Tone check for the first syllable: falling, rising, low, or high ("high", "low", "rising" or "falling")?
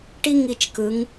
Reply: high